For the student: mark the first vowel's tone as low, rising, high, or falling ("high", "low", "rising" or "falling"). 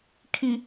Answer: low